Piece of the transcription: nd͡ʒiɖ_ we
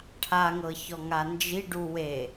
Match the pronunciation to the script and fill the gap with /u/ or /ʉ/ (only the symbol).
u